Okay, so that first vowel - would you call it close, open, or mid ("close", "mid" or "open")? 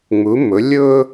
close